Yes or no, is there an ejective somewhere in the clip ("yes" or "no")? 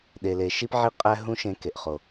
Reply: yes